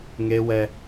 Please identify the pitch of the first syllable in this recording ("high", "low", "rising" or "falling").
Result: high